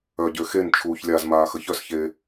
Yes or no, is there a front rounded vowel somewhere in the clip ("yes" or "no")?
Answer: yes